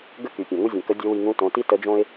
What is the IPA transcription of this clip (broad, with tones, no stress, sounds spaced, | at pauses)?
ɡ ə˥ k y˩ pʲ ã˩ ŋ u˥ zʲ õ˩ k ə˧˥ dʲ o˧˥ w i˧ ŋ ũ˧˥ t õ˩˧ t i˥ t ə˧˥ d͡ʒ õ˥ ɪ̯